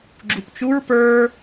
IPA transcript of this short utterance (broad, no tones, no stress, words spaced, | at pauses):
ɡ͡ǁupt͡ʃuɹ pə˞